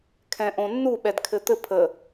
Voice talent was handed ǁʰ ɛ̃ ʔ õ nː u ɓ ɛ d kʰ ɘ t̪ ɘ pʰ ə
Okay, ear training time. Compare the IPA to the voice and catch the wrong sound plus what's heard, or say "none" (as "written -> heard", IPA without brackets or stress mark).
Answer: ǁʰ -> kʰ